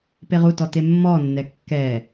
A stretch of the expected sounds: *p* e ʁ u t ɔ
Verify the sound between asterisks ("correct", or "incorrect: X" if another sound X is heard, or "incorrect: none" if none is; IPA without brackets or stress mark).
correct